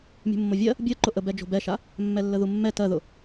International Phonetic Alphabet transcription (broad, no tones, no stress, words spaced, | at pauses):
mʲṳmːovʲɜ | bʲɜ ǃʊʔə bɛd͡ʒo̤bɛʃa | mːɛlːəðumːɛ tɜðʊ